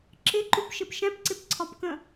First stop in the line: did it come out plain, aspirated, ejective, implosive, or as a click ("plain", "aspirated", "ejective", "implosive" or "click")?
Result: click